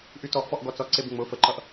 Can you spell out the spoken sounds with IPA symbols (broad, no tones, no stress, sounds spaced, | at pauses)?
ʔ y t ɔ ʔ f ɔ ʔ ɡ ɔ t͡s ɔ ǀ e b ŋ͡m ʊ f ə ǃ ʌ ʔ